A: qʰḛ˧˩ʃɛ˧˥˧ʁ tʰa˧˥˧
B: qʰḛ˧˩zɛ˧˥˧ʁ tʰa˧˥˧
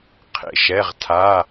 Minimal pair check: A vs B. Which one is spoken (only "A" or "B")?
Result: A